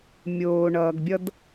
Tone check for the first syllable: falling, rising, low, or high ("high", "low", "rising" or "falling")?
low